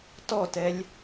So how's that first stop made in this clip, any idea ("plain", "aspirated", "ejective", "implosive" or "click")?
plain